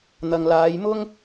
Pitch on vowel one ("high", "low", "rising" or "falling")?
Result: low